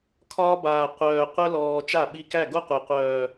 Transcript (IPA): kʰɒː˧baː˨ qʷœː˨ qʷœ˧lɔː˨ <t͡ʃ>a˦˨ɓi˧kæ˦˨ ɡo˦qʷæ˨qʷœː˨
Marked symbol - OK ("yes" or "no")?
yes